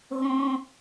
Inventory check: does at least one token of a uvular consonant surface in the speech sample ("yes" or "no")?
no